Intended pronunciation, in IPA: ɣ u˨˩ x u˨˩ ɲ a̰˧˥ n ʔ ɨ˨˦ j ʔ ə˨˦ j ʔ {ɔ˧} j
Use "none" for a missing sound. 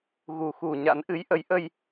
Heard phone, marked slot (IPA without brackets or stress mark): ə˧